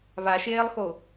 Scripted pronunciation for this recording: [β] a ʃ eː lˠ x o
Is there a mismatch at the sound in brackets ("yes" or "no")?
no